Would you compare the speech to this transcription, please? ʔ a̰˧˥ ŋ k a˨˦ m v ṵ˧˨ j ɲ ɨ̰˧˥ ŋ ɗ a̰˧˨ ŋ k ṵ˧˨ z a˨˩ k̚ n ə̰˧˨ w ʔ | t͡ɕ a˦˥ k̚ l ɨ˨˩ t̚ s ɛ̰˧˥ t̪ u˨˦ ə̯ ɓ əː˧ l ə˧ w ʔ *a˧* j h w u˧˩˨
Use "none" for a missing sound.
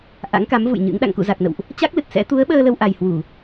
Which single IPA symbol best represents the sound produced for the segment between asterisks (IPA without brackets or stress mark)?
a˨˩